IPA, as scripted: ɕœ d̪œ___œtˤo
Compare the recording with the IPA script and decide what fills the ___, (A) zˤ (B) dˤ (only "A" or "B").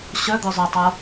A